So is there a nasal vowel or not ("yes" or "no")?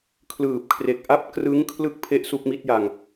no